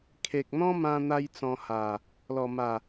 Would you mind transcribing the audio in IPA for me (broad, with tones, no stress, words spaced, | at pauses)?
kʰe˨k̚n̪ɔ̃˦mã˧n̪a˧j t͡sɔ̃˧ha˨˩ | lɔ˨˩ma˨˩